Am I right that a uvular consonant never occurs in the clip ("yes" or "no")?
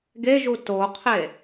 no